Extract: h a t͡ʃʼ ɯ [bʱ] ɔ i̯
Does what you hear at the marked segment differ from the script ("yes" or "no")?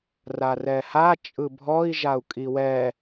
no